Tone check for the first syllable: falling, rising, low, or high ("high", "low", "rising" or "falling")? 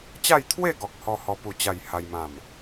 falling